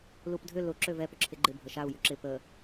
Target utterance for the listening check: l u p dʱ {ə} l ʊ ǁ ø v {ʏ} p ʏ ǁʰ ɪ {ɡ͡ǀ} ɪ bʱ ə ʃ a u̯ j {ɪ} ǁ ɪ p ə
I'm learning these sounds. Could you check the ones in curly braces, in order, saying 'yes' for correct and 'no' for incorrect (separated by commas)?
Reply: no, no, no, no